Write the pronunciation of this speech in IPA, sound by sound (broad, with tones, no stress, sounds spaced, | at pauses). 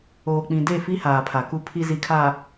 oː˨ k͡p ĩ˨ d e˦˨ f i˦ h aː˨ pʰ a˨ k u˦ pʰ i˦ z i˨ kʰ a˨